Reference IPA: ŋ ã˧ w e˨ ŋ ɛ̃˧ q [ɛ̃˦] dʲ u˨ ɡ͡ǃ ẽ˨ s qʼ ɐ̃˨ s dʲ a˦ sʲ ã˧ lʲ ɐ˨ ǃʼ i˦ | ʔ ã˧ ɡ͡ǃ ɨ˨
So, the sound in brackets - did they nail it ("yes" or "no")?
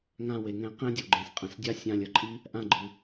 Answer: yes